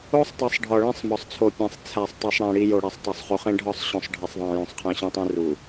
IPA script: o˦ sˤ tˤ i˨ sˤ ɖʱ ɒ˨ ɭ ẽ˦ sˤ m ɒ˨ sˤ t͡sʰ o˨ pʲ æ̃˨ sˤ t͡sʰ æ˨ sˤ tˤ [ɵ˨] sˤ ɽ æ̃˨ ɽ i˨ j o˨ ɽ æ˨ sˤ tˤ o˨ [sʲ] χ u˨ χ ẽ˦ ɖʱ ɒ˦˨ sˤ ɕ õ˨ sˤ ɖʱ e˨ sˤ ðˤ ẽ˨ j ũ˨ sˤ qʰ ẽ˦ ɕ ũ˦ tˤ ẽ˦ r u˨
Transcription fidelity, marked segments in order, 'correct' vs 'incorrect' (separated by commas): incorrect, incorrect